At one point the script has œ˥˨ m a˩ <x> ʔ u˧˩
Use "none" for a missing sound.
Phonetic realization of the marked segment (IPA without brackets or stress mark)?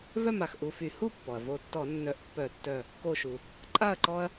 x